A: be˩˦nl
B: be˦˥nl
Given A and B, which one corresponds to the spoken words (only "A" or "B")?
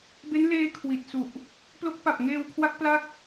B